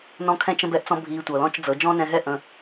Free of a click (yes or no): yes